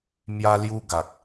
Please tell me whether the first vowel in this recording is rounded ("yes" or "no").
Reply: no